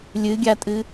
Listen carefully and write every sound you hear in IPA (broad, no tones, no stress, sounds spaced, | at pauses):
lʲ ɨ ɡʲ a tʼ ɨ